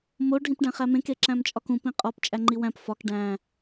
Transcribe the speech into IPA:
m o ɖʱ ĩ p ɖ æ̃ χ æ m ẽ k e ǁ æ̃ m t͡ʃʼ ɒ k ũ p ĩ qʼ ɒ p t͡ʃʼ æ ŋ͡ǃ i w æ̃ p f ɒ k ɖ æ̃

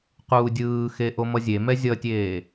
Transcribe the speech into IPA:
q uː dʲ ɯː x e ʔ o m ʌ zʲ e m ɛ zʲ ʌ tʲ eː

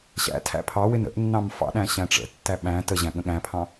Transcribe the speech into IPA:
ɕ æ̰ tʰ æ̰ pʰ ɑ w ɪ n ə̰ ʔ nː ɑ̃ m f ɑ̰ ɗ æ̃ ɕ æ̃ ʈ͡ʂ ə̰ tː æ ɓ æ̃ t ə ʑ æ̃ ɠ ə̃ ɠ æ̃ pʰ ɑ̃

